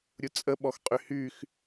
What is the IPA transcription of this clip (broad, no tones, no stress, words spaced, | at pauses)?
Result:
ɾʲut͡sʼəɓɔx qʼyhyx